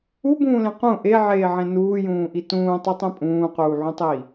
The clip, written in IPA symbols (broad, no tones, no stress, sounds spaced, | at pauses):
u b ũː l ẽ q ũ ʔ e ʕ eː ʕ ẽ n uː j ũː ʔ i t ũː tˤ u tˤ ẽ pʼ ũː q uː ʕ ũ tˤ iː